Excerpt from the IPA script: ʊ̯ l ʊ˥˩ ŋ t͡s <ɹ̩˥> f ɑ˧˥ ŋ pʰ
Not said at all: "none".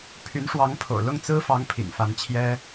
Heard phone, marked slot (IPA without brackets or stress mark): ɹ̩˥